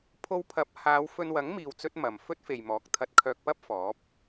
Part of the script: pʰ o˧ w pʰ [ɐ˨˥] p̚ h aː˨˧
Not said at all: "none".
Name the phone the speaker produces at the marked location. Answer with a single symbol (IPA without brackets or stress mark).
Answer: ɐ˨˥